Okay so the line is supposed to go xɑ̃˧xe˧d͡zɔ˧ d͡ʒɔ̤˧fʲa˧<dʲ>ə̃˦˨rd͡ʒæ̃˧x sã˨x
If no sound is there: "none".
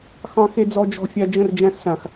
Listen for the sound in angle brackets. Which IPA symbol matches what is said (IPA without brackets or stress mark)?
d͡ʒ